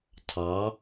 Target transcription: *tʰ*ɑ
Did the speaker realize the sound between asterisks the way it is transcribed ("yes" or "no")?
yes